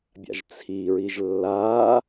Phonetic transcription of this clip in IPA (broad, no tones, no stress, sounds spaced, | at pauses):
bʲ a̰ ʒ t͡sʰ i ɹ i ʒ lː a